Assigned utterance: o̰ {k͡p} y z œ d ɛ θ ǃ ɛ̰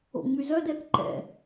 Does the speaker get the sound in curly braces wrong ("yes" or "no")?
yes